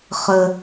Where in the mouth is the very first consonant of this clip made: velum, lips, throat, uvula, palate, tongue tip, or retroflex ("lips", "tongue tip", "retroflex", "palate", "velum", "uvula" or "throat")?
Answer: uvula